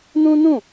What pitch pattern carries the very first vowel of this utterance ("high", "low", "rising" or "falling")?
high